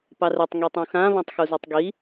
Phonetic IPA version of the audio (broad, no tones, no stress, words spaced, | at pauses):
pɑrɘtˤ ŋitˤũxã βãtˤxuzutˤɡi